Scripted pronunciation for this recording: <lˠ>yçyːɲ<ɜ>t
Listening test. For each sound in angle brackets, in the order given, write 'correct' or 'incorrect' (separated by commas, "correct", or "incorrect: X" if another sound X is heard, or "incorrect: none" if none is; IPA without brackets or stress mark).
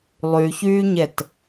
correct, incorrect: ɛ